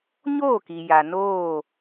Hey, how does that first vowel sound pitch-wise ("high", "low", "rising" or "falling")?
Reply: falling